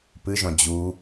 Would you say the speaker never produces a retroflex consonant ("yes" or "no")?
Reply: yes